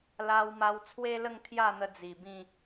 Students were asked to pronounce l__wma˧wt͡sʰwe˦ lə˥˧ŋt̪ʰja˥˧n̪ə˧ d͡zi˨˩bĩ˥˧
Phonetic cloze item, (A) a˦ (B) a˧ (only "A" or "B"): B